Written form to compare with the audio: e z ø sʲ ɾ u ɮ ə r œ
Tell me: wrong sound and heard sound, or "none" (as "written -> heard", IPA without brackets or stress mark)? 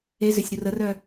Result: ɮ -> r